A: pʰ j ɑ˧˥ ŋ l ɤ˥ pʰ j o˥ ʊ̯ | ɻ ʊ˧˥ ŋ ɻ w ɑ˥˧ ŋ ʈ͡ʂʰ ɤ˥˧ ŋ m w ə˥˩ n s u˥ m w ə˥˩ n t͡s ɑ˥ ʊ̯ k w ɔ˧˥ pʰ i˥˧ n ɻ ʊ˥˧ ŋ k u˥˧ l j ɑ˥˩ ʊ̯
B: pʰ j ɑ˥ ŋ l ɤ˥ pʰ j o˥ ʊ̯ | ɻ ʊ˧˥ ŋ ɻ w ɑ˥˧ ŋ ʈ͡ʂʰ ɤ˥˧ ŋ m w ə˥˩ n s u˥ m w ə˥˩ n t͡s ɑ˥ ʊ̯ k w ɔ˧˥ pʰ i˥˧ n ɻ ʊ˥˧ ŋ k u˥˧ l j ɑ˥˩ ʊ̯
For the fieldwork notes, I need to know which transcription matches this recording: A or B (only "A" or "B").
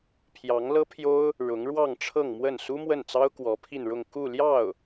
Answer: A